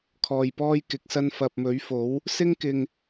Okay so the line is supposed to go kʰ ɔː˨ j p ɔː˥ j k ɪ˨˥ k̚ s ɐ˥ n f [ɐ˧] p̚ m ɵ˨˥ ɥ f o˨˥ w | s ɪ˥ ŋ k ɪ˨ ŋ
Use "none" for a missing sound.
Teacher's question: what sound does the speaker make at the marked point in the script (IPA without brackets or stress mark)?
ɐ˨